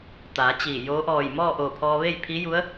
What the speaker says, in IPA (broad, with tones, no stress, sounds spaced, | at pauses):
t̪ aː˩˧ t͡ɕ iː˧˩ j oː˧˥ ʔ ɔː˧˩ j m ɔː˥˨ ʔ oː˧˩ pʰ ɔː˧ ʋ e˥˨ j pʰ i˧˥ j u˧˥ ə̯